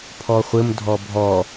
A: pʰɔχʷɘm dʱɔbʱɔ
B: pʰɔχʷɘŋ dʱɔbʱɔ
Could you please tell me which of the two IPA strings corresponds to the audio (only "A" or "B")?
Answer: A